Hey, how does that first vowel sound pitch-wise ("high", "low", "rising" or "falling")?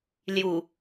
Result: low